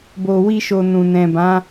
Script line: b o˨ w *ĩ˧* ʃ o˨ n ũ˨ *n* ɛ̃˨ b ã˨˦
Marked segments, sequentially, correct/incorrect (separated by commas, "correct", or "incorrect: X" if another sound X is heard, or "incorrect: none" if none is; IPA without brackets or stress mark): incorrect: i˧, correct